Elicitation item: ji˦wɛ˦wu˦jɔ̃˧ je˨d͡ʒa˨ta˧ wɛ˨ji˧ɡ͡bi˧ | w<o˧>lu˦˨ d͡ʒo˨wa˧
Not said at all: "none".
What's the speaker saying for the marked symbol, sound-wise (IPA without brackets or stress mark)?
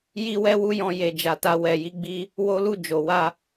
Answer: o˦